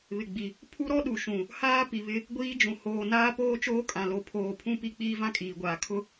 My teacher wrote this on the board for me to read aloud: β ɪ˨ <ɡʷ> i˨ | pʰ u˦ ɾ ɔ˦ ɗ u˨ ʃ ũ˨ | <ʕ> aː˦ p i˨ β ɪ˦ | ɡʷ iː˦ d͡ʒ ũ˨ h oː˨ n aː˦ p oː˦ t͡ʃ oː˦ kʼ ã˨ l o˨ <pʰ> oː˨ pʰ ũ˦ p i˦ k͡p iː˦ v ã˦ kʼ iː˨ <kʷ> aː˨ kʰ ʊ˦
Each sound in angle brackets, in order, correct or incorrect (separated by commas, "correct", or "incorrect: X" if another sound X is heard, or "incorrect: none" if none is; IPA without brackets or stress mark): incorrect: ɡ͡b, incorrect: h, correct, incorrect: ɡʷ